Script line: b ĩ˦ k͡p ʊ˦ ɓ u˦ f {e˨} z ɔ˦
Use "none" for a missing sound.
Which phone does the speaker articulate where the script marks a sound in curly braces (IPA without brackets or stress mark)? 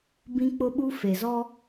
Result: e˨